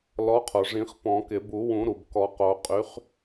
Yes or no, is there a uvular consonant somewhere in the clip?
yes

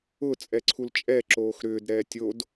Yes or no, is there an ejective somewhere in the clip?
yes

